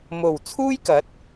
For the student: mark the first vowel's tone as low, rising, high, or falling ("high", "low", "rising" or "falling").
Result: low